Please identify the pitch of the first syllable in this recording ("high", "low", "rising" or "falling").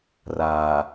low